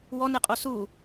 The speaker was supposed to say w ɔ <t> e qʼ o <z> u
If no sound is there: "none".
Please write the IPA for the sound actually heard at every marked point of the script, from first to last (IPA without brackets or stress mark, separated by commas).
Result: n, s